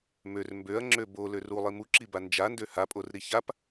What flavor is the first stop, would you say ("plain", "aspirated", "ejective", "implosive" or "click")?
plain